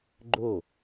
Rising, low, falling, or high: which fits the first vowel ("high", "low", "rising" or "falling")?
falling